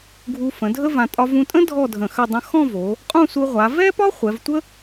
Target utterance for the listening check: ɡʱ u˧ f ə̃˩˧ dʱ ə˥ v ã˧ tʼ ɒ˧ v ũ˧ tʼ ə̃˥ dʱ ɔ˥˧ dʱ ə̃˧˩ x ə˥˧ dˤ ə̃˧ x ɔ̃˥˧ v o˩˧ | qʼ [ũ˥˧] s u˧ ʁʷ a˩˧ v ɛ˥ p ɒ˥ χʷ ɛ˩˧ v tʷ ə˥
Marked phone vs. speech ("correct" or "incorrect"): correct